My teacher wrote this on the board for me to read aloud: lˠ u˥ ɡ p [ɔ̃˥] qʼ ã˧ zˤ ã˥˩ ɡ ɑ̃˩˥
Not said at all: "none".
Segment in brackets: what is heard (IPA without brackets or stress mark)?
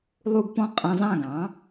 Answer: ɔ̃˥